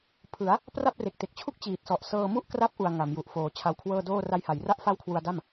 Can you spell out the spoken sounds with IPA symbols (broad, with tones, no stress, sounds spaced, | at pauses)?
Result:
pʰ ɯ˩˦ a̯ | p r a˥˩ p̚ r e˨˩ k̚ t e˨˩ k̚ t͡ɕʰ u˥˩ k̚ t͡ɕ iː˨˩ t̚ s ɔ˨˩ ʔ s ɤː˧ m u˥˩ ʔ k r a˦˥ p̚ ʔ u˨˩ a̯ ŋ a˩˦ m j u˨˩ ʔ f oː˩˦ t͡ɕʰ a˧ w kʰ w ɤː˥˩ d oː˥˩ r a˧ j h a˩˦ j r a˦˥ ʔ f a˦˥ w kʰ w u˧ a̯ d a˥˩ m